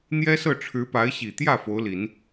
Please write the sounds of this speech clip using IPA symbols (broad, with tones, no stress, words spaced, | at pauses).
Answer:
n̪jɛ˥sɤ˥˩ʈ͡ʂʰɻ̩˧˥pa˧˥ɪ̯ ɕi˨˩t̪jä˥˩ fo˧˥ʊ̯li˨˩˦n